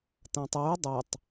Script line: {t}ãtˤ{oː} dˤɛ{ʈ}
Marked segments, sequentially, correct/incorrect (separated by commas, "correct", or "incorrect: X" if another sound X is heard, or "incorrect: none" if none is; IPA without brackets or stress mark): correct, incorrect: uː, incorrect: tˤ